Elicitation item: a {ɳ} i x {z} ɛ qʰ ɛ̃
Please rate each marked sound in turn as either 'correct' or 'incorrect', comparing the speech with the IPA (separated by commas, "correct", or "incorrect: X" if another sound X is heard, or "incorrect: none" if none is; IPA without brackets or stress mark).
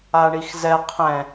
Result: correct, correct